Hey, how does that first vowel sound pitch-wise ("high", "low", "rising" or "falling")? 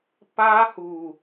high